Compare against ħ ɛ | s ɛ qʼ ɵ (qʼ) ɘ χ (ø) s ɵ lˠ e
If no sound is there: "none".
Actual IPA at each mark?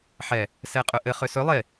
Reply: ʔ, ø

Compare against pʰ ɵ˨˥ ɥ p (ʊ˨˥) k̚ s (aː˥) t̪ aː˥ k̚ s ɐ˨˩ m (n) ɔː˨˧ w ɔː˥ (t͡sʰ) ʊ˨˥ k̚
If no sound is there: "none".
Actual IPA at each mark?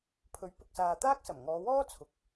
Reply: ʊ˨, aː˨, ŋ, t͡sʰ

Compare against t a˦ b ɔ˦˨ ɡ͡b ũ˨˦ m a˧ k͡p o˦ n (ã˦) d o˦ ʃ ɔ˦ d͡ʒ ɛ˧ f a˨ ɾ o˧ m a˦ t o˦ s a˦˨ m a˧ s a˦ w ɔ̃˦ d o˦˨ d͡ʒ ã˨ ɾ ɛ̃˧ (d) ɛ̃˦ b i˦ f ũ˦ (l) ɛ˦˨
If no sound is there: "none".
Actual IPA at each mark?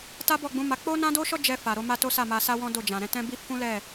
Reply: ã˦, t, l

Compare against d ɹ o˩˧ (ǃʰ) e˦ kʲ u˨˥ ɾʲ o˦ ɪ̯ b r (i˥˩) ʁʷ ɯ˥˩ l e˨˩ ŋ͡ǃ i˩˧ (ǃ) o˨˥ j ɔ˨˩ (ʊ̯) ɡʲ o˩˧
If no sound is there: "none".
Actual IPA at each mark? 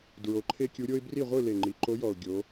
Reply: ǃʰ, i˥˩, ǃ, ʊ̯

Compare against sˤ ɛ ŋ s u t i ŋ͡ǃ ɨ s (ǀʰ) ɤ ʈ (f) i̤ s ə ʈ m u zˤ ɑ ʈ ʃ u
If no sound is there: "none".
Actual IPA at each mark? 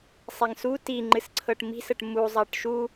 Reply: ǀʰ, m

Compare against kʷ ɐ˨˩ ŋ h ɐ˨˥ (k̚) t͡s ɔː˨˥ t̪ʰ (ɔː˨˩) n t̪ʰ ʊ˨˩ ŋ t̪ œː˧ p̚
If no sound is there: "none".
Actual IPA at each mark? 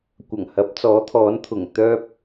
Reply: p̚, ɔː˨˥

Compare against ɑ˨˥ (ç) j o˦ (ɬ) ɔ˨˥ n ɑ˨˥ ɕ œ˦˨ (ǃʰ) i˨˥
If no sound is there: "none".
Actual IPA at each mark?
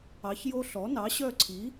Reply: ç, ɬ, ǀʰ

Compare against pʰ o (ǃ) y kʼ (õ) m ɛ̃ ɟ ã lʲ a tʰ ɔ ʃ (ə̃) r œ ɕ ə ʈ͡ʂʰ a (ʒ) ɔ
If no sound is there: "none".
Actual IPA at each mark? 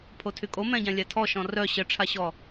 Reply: tʰ, o, ɔ̃, ɕ

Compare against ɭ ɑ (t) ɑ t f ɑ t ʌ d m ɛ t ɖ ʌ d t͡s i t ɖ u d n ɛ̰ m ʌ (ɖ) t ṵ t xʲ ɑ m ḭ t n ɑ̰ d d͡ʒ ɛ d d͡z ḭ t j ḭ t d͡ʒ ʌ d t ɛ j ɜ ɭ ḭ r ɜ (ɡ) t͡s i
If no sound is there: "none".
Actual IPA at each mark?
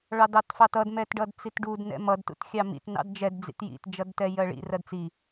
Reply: d, d, d

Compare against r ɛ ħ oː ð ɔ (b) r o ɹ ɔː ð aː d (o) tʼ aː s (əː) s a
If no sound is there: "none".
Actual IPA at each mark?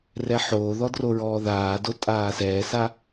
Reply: d, o, ɛː

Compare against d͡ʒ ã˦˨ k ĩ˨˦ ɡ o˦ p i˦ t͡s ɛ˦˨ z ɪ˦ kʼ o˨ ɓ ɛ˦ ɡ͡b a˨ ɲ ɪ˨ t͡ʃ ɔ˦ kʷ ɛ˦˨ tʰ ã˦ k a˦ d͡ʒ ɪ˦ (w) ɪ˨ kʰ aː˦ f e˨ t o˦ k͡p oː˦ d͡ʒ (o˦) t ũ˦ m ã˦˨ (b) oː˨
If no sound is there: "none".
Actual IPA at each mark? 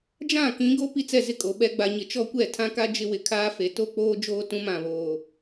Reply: w, oː˦, β

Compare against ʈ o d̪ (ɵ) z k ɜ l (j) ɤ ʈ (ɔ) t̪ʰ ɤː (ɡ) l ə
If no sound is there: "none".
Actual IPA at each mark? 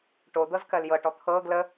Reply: ɤ, j, ɔ, ɡ

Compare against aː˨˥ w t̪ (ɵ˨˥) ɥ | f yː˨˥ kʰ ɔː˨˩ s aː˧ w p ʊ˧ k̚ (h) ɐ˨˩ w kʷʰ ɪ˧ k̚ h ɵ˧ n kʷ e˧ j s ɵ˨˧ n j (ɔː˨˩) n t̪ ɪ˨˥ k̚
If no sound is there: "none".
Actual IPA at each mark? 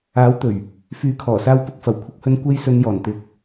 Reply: ɵ˨˩, f, ɔː˨˩

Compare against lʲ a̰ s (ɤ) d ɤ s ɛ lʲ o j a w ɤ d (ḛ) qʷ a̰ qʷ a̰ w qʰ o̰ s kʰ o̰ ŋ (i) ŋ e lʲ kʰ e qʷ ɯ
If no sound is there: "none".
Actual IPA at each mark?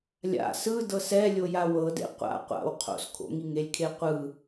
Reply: ɯ, ḛ, i

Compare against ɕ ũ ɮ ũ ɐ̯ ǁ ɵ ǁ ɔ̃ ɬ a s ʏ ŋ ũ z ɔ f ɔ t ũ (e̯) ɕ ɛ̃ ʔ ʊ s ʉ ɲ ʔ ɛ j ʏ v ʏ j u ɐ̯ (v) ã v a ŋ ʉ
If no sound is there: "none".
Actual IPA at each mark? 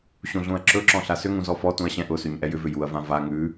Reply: ɐ̯, v

